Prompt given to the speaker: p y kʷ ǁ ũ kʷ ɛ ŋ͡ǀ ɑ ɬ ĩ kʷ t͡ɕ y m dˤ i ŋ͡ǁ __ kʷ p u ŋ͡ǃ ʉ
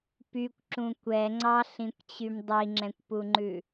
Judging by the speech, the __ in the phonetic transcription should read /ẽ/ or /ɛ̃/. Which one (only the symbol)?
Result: ɛ̃